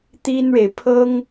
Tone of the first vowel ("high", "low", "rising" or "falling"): high